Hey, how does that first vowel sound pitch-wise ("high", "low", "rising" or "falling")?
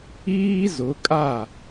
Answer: high